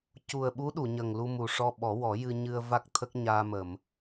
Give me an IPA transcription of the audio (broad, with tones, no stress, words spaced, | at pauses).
cu˨˩ə̯ɓu˧˥ ɗu˨˩˨ɲə˨˩ŋlu˧ mu˨˩ʂɔ˧ɓɔ˨˩˦ wɔ˨˩˦jɨ˧ ɲɨ˧ə̯va˦˥k̚ t̪ʰə˦˥k̚ɲaː˧mə˨˩˨m